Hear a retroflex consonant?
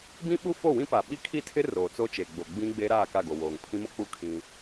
no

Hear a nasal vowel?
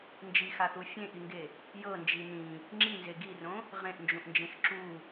yes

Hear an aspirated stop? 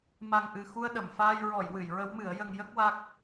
no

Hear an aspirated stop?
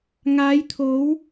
yes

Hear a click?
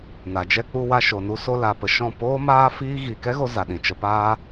no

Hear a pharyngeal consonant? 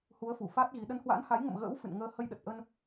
no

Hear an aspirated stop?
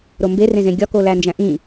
no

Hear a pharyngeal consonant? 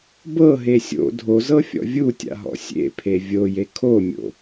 no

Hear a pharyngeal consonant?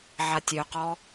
yes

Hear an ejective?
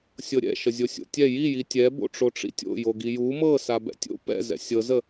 no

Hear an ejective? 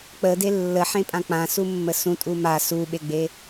yes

